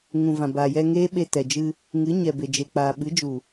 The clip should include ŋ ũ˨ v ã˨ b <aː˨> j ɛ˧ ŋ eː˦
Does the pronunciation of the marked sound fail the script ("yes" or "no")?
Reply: no